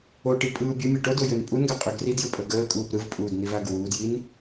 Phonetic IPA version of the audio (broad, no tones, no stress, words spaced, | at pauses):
oʈi pʼɯːbʲəmʲəː ʈodo jønpʼunɡa qʼøɡridjɯ pʼəɡəːkʼuːp ɾɯvpʼuːd nivaɡwuːdjin